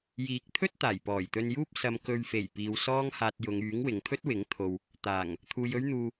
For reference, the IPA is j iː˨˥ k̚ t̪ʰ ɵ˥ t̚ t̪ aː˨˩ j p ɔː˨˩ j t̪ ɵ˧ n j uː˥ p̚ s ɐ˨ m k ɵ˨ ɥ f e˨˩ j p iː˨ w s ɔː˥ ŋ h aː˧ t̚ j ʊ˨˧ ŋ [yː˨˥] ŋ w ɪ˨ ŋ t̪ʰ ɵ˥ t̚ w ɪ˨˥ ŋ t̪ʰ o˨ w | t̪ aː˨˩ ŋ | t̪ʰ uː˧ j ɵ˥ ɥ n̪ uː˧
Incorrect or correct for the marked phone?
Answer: correct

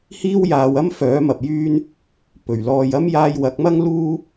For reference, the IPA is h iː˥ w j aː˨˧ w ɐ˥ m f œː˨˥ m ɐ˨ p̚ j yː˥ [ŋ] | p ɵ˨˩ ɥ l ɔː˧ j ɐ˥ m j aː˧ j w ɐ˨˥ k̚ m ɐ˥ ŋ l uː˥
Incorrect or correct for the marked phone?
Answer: incorrect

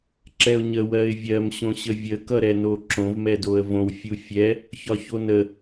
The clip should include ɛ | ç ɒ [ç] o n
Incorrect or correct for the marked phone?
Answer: correct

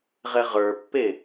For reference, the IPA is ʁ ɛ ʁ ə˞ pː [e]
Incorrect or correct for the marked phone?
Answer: correct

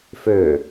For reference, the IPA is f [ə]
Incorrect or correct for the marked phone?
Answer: incorrect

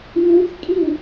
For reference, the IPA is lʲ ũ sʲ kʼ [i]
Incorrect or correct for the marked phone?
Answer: correct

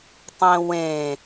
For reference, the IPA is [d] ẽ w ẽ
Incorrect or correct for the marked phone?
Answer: incorrect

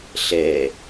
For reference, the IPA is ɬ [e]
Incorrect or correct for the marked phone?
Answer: incorrect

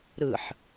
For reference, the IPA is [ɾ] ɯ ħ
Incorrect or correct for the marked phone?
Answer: correct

